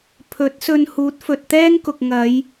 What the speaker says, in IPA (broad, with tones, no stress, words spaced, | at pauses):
pʰɵ˨˥t̚sɵ˧n huː˨˥t̚fɵ˨t̚t̪ɛː˥ŋkʊ˨k̚ ŋɐ˨˧j